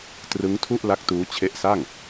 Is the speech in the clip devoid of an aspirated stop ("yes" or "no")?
no